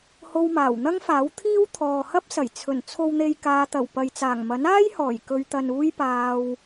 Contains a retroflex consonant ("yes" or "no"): no